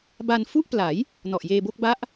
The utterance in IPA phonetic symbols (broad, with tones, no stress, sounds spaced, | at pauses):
b a˧ n f u˥˩ ʔ p l a˩˦ j | n ɔ˨˩ ʔ j eː˧ b o˥˩ k̚ b a˦˥ ʔ